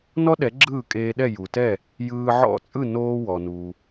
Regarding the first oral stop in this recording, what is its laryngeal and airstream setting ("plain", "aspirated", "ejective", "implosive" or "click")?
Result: implosive